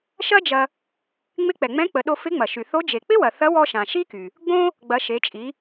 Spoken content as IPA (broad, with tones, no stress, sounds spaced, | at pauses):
ʃ ɐ˥ d͡ʒ ɐ˧ | ŋ͡m ɪ˧˥ k͡p ɛ˩ ŋ͡m ɛ̃˧˥ k͡p ə˩˧ ɗ o˧ f ɪ˧˥ ŋ͡m ɐ˩ ʃ y˩ θ o˧˥ d͡ʒ e˩ k͡p ɪ˥ w ɐ˩ θ ɐ˧˥ w ɔ˧ ʃ ã˩ ʃ i˥ k y˩ | ɡ͡b õ˥ | ɡ͡b ɐ˩˧ ʃ e˩˧ t͡ʃʼ i˩˧